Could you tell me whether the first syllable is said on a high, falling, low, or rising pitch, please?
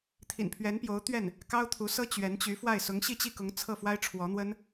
low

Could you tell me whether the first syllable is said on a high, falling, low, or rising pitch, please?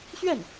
falling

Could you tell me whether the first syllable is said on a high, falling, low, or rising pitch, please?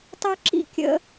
high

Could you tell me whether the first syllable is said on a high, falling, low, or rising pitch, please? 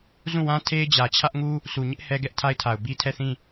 falling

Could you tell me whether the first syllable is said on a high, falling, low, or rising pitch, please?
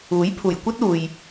rising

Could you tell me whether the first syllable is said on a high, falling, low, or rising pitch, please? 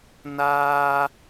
high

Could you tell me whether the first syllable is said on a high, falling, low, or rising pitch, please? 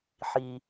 low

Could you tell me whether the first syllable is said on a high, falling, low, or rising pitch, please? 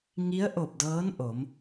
rising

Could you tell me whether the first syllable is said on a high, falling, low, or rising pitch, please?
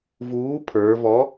rising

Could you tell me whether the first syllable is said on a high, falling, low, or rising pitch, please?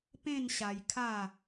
falling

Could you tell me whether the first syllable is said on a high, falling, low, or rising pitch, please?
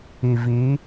low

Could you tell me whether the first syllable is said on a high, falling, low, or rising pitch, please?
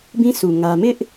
high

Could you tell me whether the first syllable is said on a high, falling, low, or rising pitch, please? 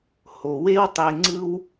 low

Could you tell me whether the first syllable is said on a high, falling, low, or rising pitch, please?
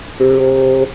low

